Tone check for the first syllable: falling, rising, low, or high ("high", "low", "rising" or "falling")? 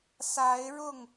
rising